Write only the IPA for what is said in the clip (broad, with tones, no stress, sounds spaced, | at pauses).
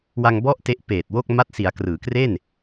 w a˧ ŋ b ɔ˥˩ ʔ t e˦˥ ʔ p eː˨˩ t̚ w o˥˩ k̚ m a˦˥ t̚ s i˩˦ a̯ k r ɯː˩˦ k r e˥˩ n